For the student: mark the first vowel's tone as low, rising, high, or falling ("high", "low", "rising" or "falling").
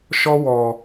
high